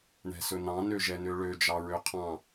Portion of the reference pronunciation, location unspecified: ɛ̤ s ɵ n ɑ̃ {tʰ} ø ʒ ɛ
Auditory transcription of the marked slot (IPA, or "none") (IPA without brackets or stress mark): n